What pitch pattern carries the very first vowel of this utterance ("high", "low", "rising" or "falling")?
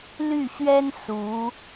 falling